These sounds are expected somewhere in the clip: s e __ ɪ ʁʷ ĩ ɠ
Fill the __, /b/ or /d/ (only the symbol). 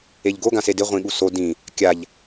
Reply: d